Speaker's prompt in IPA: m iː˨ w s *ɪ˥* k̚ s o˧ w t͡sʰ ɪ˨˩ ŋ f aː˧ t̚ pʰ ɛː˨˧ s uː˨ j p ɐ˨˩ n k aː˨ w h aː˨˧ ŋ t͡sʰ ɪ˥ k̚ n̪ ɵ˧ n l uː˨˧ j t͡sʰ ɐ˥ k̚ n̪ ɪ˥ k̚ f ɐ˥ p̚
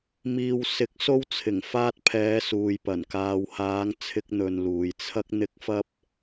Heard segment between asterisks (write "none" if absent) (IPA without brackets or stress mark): ɪ˨˥